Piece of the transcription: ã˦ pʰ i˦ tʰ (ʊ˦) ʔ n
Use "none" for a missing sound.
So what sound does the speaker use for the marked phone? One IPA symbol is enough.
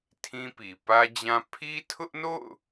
ʊ˦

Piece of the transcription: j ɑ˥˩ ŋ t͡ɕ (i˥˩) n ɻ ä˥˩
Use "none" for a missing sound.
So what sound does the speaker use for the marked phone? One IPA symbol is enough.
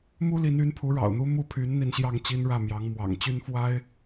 i˥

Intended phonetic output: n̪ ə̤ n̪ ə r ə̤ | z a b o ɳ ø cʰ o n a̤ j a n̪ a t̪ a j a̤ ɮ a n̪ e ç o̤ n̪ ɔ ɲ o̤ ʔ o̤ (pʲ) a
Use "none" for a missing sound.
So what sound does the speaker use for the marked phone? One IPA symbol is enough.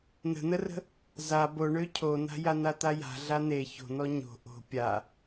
pʲ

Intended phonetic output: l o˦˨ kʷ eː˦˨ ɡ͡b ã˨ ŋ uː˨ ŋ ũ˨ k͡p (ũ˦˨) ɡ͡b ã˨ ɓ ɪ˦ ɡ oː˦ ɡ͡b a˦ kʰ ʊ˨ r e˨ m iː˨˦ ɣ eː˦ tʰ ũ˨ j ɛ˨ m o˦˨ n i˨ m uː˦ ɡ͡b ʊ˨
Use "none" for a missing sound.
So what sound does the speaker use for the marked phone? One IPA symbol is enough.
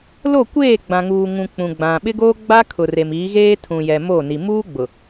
ũ˨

